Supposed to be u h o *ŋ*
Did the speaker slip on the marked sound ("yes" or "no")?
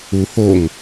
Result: no